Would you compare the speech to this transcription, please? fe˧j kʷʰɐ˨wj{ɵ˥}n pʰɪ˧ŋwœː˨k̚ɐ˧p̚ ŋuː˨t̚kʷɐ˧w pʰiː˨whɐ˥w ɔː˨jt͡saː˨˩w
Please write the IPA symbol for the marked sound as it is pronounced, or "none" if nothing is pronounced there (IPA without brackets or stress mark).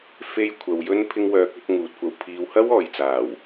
ɵ˥